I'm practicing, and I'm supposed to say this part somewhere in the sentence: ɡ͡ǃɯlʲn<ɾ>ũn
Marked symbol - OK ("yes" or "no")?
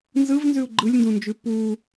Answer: no